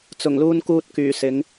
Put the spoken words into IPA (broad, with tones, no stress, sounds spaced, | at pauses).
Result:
t͡s ʊ˨˩ ŋ l uː˧ n k uː˧ t̚ k yː˨˩ s ɪ˨˧ ŋ